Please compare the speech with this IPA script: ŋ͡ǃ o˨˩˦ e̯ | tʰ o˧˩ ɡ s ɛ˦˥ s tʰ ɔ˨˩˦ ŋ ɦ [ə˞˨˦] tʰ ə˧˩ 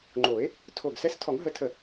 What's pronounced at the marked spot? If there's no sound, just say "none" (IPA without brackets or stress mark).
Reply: ə˨˦